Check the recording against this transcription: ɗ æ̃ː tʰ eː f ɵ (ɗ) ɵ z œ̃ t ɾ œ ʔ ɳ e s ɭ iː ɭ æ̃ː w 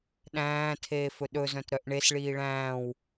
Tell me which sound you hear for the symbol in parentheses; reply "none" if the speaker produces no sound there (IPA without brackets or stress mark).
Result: ɗ